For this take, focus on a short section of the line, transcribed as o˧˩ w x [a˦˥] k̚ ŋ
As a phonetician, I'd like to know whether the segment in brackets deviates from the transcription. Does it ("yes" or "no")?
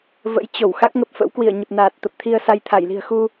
no